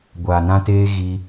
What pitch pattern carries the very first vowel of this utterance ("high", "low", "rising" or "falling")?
low